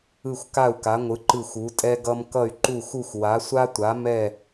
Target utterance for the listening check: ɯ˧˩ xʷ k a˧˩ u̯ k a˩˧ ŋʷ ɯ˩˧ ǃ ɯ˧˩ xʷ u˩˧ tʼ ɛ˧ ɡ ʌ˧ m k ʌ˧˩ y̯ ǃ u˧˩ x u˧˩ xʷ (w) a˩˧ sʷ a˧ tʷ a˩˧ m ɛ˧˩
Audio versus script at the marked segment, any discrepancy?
no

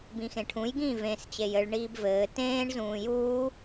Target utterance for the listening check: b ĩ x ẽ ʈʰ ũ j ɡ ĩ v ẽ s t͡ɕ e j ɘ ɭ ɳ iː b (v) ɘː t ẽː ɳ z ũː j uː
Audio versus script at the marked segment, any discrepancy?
no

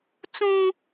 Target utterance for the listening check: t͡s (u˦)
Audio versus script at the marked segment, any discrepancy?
yes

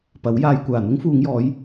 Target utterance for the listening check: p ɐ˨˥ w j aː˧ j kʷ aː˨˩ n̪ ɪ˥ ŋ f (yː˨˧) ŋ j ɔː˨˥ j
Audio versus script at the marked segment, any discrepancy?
yes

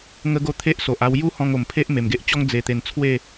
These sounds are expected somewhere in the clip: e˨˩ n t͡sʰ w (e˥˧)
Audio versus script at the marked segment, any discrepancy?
no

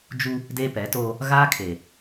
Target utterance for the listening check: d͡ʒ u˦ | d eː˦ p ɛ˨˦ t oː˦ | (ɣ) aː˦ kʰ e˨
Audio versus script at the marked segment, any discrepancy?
no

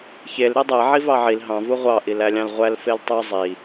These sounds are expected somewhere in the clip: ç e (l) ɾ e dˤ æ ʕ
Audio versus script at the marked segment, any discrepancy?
no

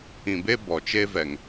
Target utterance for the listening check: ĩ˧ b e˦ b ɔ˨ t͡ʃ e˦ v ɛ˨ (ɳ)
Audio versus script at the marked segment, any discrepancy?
yes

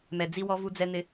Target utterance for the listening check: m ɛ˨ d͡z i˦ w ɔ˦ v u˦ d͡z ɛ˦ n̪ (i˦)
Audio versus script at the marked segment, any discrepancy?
yes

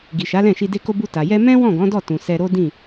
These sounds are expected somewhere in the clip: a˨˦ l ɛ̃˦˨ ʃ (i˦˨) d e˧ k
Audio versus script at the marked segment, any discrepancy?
yes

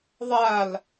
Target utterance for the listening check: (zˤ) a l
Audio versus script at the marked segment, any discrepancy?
yes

